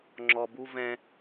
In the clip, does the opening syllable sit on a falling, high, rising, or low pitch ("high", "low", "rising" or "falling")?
low